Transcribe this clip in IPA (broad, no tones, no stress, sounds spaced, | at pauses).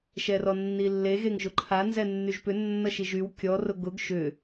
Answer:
ʃ ɛ r ɔ nː i lː e ɣ e ŋ ʒ ʊ ǃʰ a n z ɛ nː y ʒ p ʏ nː ʌ ʃ i ʒ y w kʲ ɔ r ʊ ɡ ʊ ɡ ʃ ʏ